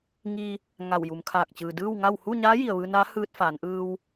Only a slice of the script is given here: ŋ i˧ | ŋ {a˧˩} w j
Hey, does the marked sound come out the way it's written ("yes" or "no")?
yes